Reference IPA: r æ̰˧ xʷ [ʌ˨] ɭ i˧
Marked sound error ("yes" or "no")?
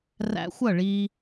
yes